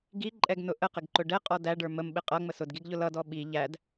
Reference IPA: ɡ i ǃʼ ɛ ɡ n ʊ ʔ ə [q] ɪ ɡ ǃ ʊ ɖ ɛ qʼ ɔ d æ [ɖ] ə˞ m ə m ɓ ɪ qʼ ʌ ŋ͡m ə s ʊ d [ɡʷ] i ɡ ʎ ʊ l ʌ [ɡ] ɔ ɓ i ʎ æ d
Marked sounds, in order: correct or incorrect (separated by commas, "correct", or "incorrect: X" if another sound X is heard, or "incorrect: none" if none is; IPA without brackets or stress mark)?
correct, correct, incorrect: ɡ, incorrect: d